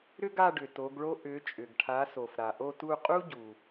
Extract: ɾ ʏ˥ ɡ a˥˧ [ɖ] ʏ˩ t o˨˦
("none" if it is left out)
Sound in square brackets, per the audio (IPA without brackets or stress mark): ɖ